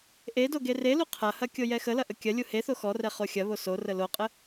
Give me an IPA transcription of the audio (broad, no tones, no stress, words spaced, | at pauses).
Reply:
ʔedo ɡerelu qʰɐhɐ kʲojɛxəlɐ ʔəkʲɐlʲu heθo xɔrɛ χoxʲɐβo sorə loqʼə